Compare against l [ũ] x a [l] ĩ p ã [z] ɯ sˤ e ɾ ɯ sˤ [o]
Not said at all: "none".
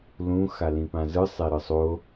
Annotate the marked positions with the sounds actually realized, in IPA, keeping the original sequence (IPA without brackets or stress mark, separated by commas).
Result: ũ, l, z, o